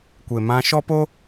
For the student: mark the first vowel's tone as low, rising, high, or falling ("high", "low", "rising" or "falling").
low